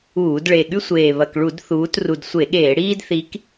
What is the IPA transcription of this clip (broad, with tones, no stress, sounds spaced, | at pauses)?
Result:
uː˧˩˧ d ɭ e˨˩ ɠ ʉ˦ sʷ eː˨˩ β ɐ˨˩ k ɭ u˧˩˧ d θ uː˨˦ t r u˨˩ d sʷ e˧˩˧ ɠ eː˧˩˧ ɽ iː˦ d θ i˨˦ k